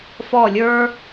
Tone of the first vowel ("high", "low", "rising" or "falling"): falling